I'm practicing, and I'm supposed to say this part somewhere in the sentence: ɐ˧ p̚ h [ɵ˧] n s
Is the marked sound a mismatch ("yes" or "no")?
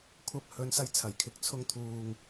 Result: yes